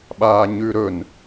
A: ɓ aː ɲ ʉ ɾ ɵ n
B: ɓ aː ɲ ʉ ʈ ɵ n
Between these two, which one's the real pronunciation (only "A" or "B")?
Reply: A